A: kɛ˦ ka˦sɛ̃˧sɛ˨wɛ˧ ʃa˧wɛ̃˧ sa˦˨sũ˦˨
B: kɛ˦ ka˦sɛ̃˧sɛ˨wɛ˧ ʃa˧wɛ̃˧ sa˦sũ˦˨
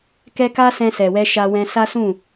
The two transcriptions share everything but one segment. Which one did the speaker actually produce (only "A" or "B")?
B